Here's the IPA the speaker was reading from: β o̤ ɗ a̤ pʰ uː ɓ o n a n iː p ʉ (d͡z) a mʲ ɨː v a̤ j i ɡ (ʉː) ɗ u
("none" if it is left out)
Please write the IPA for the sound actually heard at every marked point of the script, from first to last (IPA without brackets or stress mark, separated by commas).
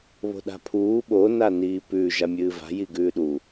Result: ʒ, ʉː